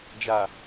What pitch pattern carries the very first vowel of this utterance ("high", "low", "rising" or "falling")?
low